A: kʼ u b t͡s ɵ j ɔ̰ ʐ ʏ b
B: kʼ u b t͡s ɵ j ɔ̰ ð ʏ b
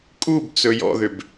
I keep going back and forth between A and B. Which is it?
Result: B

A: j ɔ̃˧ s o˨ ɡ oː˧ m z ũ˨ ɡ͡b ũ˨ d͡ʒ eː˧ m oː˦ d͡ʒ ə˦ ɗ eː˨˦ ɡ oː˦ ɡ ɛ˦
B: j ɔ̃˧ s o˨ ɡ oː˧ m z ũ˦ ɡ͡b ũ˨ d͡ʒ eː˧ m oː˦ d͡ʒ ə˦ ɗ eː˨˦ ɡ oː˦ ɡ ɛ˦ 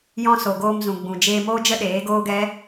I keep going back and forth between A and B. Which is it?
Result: A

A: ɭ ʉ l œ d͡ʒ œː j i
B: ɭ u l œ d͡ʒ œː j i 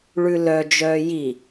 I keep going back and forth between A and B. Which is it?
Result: A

